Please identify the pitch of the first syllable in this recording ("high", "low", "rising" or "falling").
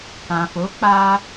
low